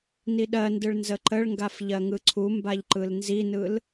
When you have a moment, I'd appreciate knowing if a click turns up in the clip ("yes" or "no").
yes